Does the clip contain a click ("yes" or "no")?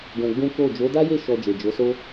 no